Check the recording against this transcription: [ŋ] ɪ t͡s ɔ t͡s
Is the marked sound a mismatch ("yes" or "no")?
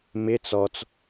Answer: yes